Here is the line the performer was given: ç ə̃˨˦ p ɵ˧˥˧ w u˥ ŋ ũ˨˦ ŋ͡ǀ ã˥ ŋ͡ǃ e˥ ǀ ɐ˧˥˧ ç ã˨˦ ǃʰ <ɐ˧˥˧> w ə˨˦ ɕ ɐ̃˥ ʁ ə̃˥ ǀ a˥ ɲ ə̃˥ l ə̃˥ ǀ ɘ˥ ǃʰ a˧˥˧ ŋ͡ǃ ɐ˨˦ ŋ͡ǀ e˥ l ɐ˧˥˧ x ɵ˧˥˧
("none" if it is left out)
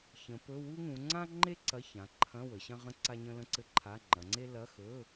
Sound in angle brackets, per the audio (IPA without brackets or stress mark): ɐ̃˧˥˧